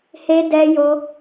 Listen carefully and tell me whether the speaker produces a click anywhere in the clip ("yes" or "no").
no